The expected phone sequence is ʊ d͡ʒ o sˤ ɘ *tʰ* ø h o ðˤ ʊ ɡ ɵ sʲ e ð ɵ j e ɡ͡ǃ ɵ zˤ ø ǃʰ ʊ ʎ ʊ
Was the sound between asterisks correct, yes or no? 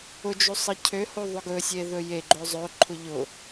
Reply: no